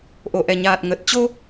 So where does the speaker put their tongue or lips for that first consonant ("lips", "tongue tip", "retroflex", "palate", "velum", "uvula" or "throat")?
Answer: throat